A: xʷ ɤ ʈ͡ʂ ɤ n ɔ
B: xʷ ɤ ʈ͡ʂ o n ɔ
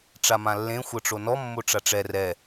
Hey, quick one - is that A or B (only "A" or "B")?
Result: B